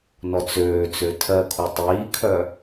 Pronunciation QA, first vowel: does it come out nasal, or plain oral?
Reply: oral